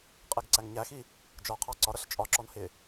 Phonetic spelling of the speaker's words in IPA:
qʼ ɛ ɡ ǀ æ ŋ ɲ æ x i | d͡ʒ ɒ qʰ ɑ ǀ ɒ ɾ ʌ ɬ t͡ʃʼ ɒ ǁ ɔ n h ɪ

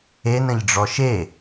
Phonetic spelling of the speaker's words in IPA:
e n ə̃ ʎ ɖ͡ʐ ɔ ʃ e

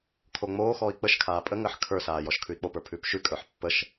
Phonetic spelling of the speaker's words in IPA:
kʰ o ŋ͡m oː x ɔː i̯ k͡p ə ʃ kʰ aː pʼ ə ŋ əː ħ kʰ ə˞ s aː j ɔ ʃ kʰ ʉ i̯ k͡p o p ə˞ pʰ ʉː p ʃ ʉ kʼ ə˞ ħ pː ə ʃ

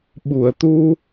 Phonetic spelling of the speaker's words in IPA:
ɓ u˨˩˨ ə̯ t̪ u˧

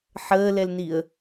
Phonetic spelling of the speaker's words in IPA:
ħ əː l ɛ l n i ə̯

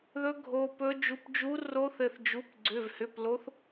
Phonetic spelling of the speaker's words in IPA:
ð ɵ˧˥ ɡʱ o˩˧˩ p ɵ˧˥ d͡ʒ u˩˧˩ p d͡ʒ u˧˥ r o˧˥ θ ɘ˩˧˩ θ d͡ʒ u˩˧˩ p ɡ͡ǀ ʏ˩˧˩ v h ʏ˩˧˩ p l o˧˥ θ

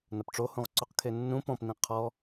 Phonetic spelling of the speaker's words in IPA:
n ɐ p ʈ͡ʂ o h ũ ʁ ǀ o q kʰ e nː ũ p ɔ̃ p n ĩ qʰ ɔ

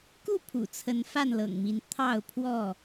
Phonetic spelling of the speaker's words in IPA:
k u˥˨ pʰ ṵ˨˩ t͡sʰ ə˨˦ n f a˥˨ n l ɤ̰˨˩ ŋ m i˨˦ n t̪ʰ ɑ˥˨ ʊ̯ pʰ w ɔ˥˨

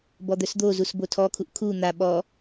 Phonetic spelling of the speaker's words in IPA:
b ɔ d̪ œ s d̪ o z u s b o tʰ ɔ kʰ u ʔ kʰ u n̪ a ɓ ɔ

